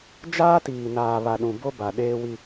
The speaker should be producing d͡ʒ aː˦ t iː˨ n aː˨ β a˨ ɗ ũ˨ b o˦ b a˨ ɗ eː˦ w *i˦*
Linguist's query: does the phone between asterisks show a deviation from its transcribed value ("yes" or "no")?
no